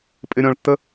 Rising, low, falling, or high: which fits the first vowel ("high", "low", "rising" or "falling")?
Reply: high